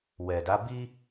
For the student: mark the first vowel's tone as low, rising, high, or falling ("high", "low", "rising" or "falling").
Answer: low